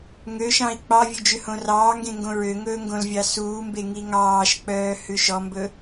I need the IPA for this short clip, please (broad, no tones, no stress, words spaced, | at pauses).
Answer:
ŋøʃɑ̃i̯ k͡pɑvʲʉ d͡ʒʉhõrɑːŋɡẽ ŋɡõɹøŋɵː ŋɡõlvʲɑsuːmbe ŋiŋɑːʃk͡pœː hʉʃɔmbɵ